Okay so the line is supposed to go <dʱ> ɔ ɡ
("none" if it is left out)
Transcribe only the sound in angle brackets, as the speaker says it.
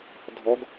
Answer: dʱ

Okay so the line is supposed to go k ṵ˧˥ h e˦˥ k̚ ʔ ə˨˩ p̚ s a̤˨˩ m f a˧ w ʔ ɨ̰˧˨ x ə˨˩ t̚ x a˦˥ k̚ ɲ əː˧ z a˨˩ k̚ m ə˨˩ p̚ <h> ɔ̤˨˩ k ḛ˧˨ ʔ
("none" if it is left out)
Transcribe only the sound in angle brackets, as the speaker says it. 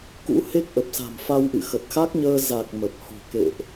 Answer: h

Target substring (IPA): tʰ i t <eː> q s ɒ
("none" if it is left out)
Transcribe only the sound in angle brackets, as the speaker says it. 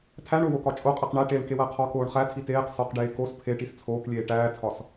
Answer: eː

